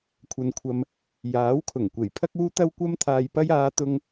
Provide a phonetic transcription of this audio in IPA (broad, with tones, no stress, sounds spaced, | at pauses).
kʷʰ ɐ˧ n kʷʰ ɐ˧ m | j aː˨˥ w kʰ ʊ˨˩ ŋ kʷ e˨˩ j pʰ ɐ˥ k̚ uː˥ t̪ ɐ˥ w kʷ ɐ˧ m t̪ʰ aː˨ j p ɐ˧ j aː˨˧ t̪ ʊ˧ ŋ